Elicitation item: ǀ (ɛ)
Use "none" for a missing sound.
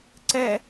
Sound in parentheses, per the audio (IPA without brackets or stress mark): ɛ